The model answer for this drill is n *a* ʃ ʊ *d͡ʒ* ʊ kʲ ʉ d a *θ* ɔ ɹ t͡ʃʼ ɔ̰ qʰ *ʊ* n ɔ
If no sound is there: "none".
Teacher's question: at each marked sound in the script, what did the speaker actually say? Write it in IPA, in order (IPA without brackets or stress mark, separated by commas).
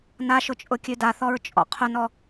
a, t͡ʃʼ, θ, ʊ